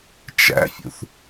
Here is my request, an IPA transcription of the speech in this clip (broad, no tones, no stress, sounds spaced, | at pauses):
t͡ʃ æ̰ fʲ ṵ θ